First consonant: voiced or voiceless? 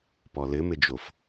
voiceless